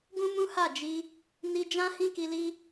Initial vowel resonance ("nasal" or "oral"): nasal